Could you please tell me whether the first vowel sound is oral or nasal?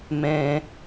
nasal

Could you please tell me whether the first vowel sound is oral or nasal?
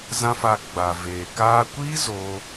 nasal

